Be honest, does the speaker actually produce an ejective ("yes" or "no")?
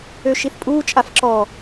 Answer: yes